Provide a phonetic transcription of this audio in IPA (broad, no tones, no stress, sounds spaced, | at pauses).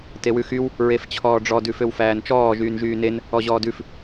t e w ʉ x y w | ɹ e f t͡ɕʰ ɔː ɖ͡ʐ ɔ d ʉ f ø w f æː n t͡ʃ ɔː ʒ yː n ʒ yː n e n | ɔ ʑ ɔː d ʉ f